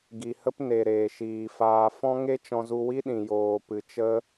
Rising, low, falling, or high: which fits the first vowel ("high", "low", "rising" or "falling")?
low